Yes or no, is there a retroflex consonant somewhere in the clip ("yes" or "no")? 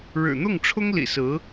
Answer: yes